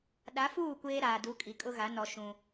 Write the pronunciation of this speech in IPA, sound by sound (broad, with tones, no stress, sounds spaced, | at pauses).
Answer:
ɗ a˨˦ f uː˦˨ kʷ eː˦ ɾ aː˨ d u˨˦ kʼ i˨ kʼ ʊ˦ ɣ a˨˦ n ɔ˨ ʃ ũ˦